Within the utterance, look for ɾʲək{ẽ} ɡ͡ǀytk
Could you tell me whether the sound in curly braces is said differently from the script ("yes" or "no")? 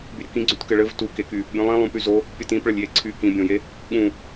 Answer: yes